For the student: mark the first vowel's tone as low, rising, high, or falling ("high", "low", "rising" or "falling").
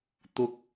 high